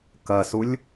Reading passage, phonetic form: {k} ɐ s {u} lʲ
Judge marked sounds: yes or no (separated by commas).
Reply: yes, yes